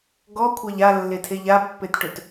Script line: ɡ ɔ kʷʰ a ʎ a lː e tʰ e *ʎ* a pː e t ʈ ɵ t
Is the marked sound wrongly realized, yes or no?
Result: no